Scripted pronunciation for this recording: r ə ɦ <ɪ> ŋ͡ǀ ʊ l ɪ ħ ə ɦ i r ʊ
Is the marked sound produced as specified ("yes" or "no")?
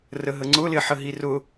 no